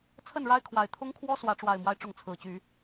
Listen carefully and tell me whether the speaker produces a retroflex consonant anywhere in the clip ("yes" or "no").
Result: yes